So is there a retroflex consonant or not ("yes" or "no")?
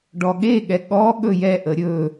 yes